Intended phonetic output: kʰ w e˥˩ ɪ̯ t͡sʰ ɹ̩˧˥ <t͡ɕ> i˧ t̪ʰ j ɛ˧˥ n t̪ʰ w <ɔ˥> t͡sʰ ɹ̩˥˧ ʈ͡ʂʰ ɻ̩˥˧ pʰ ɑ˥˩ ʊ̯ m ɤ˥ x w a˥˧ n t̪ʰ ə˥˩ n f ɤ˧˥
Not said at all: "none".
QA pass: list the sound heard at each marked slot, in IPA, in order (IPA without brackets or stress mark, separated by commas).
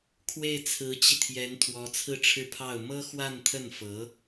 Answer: t͡ɕ, ɔ˧˥